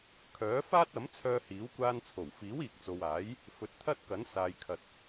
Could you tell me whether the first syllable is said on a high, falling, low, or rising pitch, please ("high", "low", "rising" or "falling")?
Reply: rising